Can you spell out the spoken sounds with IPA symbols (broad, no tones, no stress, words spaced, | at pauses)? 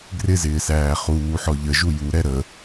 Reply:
ɡrɪzɪːsæː χuːħɔ ʎəʒu juɾɛ ɾə